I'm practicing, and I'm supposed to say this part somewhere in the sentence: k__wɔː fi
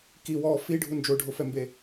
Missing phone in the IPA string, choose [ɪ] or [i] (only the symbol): i